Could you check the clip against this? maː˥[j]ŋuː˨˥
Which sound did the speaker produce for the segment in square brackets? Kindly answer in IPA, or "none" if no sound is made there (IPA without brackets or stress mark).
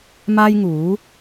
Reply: j